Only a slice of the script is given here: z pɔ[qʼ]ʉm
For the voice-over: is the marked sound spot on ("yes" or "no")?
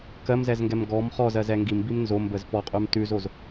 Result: yes